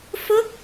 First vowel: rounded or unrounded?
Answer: rounded